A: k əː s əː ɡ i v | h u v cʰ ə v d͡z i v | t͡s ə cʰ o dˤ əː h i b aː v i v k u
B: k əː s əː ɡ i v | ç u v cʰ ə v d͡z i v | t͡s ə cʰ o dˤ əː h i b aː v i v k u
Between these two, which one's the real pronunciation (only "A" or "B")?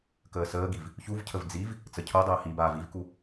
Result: B